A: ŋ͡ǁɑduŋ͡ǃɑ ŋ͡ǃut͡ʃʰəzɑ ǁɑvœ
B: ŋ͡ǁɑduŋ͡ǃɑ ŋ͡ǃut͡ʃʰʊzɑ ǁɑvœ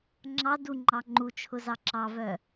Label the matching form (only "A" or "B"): B